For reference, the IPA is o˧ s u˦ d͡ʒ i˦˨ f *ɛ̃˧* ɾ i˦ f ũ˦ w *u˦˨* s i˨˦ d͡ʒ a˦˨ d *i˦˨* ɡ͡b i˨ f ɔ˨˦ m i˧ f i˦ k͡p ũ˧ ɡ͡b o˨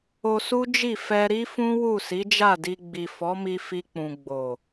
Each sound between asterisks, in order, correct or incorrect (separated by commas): incorrect, correct, incorrect